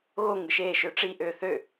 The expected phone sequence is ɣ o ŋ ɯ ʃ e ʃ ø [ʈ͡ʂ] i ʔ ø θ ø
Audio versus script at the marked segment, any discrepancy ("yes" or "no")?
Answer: no